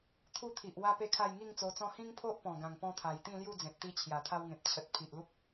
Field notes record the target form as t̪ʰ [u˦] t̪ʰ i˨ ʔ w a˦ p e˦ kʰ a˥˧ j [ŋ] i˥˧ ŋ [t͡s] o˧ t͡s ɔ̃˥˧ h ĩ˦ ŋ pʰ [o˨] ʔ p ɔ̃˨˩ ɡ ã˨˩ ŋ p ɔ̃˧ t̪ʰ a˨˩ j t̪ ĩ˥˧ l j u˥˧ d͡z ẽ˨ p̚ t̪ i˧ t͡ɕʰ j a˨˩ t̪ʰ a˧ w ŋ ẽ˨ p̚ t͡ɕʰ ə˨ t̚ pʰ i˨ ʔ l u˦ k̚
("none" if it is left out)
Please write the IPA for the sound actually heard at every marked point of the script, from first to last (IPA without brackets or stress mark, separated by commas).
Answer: u˦, ŋ, t͡s, o˦